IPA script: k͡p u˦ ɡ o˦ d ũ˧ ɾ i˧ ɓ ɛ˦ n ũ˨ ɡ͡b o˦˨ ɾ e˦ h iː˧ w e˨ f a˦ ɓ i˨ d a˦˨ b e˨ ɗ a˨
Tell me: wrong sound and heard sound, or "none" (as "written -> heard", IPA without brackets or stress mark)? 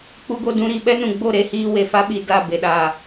none